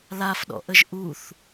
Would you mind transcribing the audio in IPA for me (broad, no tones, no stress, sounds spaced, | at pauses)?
l a f ɗ ɔ̰ ʔ ə ʒ ʔ u θ